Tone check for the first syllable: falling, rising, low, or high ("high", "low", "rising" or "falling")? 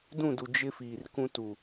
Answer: falling